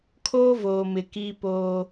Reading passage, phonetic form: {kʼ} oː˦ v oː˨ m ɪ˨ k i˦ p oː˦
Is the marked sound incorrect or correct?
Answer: incorrect